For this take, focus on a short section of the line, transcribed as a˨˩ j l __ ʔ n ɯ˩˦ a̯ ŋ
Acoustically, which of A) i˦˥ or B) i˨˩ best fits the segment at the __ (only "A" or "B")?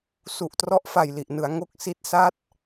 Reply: B